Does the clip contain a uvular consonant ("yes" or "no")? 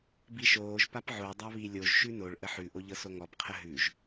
yes